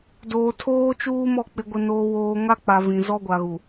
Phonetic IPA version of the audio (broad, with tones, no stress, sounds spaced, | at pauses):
d oː˨ tʰ oː˦ t͡ʃ uː˦ m ɔ˦˨ k͡p ɪ˨ ɡʷ ɪ˨ n oː˨ w oː˨ ŋ a˦ k͡p a˨ v ĩ˨ z ɔ˦ ɡʷ a˨ ɣ u˨